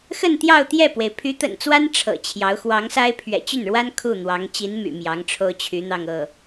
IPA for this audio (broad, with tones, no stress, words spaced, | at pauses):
xə˥˧nt̪jɑ˥˧ʊ̯t̪jɛ˥˩pwe˩ɪ̯ pʰy˧˥t̪ə̰˨˩nt͡swa˥n ʈ͡ʂʰɤ̰˨˩t͡ɕʰjɑ˧˥ʊ̯ xwɑ˧˥ŋsa˥ɪ̯ pʰɥɛ̰˨˩t͡ɕy˥˩nɻwa˥n kʰu˥˩n̪wɑ˧˥ŋ t͡ɕi˧˥n my̰˨˩mjɑ˧˥ŋʈ͡ʂʰo˥ʊ̯ t͡ɕʰy˧˥n̪ɑ˥˧ŋɤ˥˩